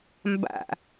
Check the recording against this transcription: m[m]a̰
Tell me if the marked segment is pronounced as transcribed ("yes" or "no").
no